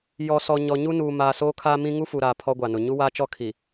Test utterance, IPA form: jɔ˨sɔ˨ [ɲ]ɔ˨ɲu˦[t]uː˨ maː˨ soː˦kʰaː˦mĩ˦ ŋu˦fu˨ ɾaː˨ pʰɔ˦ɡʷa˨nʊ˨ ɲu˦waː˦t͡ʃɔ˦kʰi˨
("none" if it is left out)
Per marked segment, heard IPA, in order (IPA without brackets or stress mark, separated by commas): ɲ, n